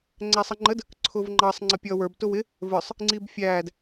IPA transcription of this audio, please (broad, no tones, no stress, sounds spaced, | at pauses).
ŋ͡ǀ æ sˤ ə ŋ͡ǃ ə d | ǀʰ ʊː v ŋ͡ǃ ɑ sˤ ŋ͡ǀ ʌ pʲ ʌː w ə˞ b t ʊ w ɪ | v ə˞ sˤ | ŋ͡ǀ i b fʲ æː d